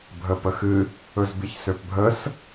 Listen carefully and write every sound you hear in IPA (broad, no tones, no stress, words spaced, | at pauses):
bʱəːpəxɨ | ɵzbiçsøpbʱəs